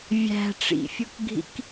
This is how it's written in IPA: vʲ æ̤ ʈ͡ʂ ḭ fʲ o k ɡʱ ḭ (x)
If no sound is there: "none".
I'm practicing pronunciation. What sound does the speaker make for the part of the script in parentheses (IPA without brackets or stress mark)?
k